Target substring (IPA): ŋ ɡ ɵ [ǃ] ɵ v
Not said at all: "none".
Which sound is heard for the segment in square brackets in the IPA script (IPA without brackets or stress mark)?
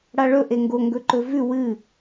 ǃ